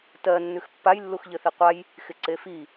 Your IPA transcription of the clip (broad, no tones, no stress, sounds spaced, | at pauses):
t ɜ nː ʉ x pː a j lː u x ʎ ɘ θ i qʷ a j | x ɪ ǀ e f i